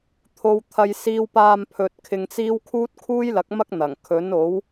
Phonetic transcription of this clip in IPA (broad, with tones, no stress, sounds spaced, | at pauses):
t̪ʰ o˥ w t̪ʰ ɐ˥ j s iː˥ w p aː˧ m pʰ ɵ˧ t̚ kʰ ɪ˧ ŋ t͡s iː˥ w kʰ uː˥ t̚ kʰ uː˥ j l ɐ˨˥ k̚ m ɐ˥ k̚ n̪ ɐ˨˩ ŋ kʰ ɵ˨˥ n o˨˥ w